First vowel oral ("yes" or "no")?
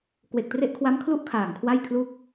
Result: yes